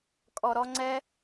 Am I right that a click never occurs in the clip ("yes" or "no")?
no